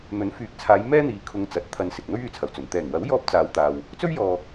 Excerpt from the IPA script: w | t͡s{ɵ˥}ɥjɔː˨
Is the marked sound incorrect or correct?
correct